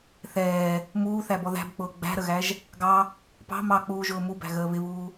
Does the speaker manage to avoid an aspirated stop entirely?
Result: yes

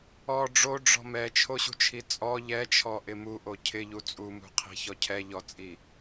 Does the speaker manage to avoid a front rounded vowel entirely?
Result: yes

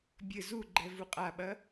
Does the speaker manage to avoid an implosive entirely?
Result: no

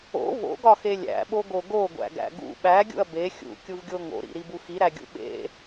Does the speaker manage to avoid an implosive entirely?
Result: no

